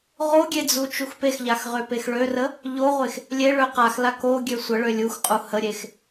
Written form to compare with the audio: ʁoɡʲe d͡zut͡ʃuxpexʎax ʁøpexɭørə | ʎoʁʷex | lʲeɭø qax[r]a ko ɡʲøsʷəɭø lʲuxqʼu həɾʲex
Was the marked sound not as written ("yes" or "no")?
yes